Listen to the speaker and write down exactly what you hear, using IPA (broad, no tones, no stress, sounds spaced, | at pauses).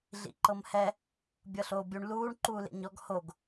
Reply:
ɮ ḭ ǃ ɤ m h ɛ | bʲ ɤ ɬ oː bʲ u ɳ l uː ɳ ǃ uː l ḛ ɲ ɔ ɡ h o ɡ